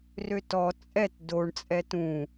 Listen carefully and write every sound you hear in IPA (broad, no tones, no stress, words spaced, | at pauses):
røtɔ t͡sʼɛt doɳ t͡sʼɛtũ